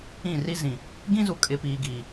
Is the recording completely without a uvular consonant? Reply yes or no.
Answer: yes